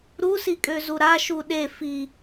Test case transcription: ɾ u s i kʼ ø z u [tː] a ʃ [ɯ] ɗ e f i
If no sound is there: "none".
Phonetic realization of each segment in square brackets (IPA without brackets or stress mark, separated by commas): ɾ, u